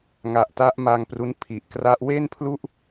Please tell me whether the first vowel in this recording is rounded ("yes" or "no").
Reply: no